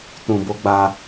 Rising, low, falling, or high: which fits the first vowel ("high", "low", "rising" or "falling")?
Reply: low